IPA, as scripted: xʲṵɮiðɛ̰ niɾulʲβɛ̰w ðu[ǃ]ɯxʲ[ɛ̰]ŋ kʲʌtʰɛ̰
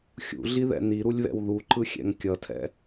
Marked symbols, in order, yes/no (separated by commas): yes, yes